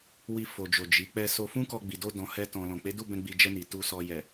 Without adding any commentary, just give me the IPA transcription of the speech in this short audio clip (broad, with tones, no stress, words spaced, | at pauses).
wi˧ fo˨d͡ʒo˨ d͡ʒi˨˦ k͡pɛ˧so˧fũ˦kɔ˧ ɡ͡bi˨do˧ dɔ̃˧hɛ˦tɔ̃˧ lɔ̃˨k͡pe˨˦du˦˨bɛ̃˧ ɡ͡bi˧d͡ʒɛ˧ni˨ tu˨sɔ˨jɛ˨